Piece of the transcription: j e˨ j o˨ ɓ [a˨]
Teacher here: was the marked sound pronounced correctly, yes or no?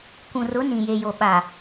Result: yes